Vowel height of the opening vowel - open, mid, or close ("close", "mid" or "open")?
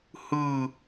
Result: close